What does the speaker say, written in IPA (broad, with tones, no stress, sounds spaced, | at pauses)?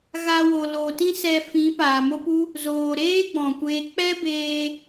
ɣ a˧ w o˨ l oː˨ t ĩ˦ s ɛ˧ f ĩ˨˦ p aː˨ m o˦ p u˦ | z oː˨ ɾ eː˦ ɡ͡b ɔ̃˨ kʷ eː˧ k͡p ɛ˦ b eː˧